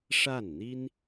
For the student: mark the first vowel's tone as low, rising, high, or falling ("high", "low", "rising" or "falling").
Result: falling